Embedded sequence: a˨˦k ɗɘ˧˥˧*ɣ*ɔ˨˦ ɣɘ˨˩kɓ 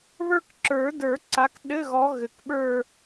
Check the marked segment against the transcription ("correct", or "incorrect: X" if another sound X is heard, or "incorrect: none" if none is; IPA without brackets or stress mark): correct